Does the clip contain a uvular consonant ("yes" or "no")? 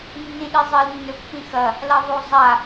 no